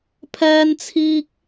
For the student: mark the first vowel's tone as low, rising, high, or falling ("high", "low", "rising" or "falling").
high